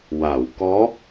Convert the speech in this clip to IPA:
w a˨˩˨ w k ɔ˧˥

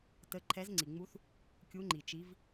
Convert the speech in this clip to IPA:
t ə˧˥ ǃʰ ɛ˧˥ z ŋ͡ǀ i˨ ŋ͡m u˧˥ θ | kʲ u˧˥ ŋ͡ǃ i˨ t͡ʃ i˧˥ v

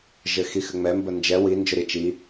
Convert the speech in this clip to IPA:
ʒ ɘ x i x ɘ ŋ͡m ɛ m b ə n d͡ʒ ɛ w i n d͡ʒ ʊ ɾ i t͡ʃ i

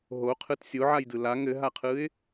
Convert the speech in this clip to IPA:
ɦ o qʰ ɯ t sʲ o ʕ a j d ɯ l a ŋ ɘ ɦ a qʰ ɯ ɪ̯

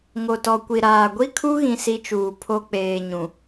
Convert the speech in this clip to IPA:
ŋ o˨ t ɔ˨ kʷ i˨ ɾ aː˨ ɡʷ i˦ kʰ u˦ ɣ ĩ˦ s i˦ t͡ʃ uː˨ pʰ o˦ k͡p eː˨ ɲ ũ˨

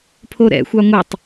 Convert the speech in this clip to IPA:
pʰ o ɾ ɛ̰ xʷ ɑ ŋʷ ɑ tˤ

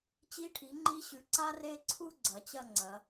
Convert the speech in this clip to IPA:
t͡ɕ i˧ ʈʰ i˩˧ ŋ͡ǃ i˧ ɕ ʉ˧˩ ǀ a˥ r e˥˧ ǀʰ u˥ ɡ͡ǀ ɐ˩˧ t͡ɕ ɐ˥˧ ŋ͡ǀ ɐ˩˧

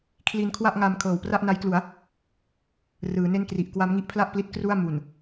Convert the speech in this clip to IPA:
kʰ l i˧ n kʰ w a˥˩ ʔ ŋ a˧ m kʰ ɤː˨˩ w p r a˥˩ ʔ n a˦˥ j k l u˩˦ a̯ | r ɯː˩˦ n e˥˩ n k r i˨˩ ʔ k w a˦˥ m ŋ i˦˥ ʔ pʰ l a˥˩ ʔ p l i˦˥ t̚ k r u˥˩ a̯ m u˨˩ n

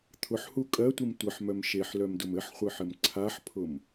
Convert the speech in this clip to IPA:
t̪ʰ ʊ ħ h u kʼ ɜ tʷ i m tʷ ɘ ħ m œ m ʃ e ħ l œ m d ʊ m ɘ ħ χʷ ɘ ħ ɘ m ǀʰ a ħ pʰ ʊ m

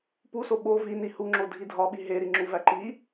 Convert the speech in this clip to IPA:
p u s o ɓ o v i n i h u ŋ͡ǁ o dʱ i dʱ ɒ ɓ i ɦ e ɾ i ŋ͡ǁ u v æ ǃ i

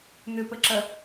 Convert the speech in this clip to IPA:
n̪ ʏ p ə ǁ ɐ

